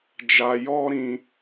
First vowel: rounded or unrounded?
unrounded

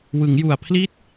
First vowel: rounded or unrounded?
unrounded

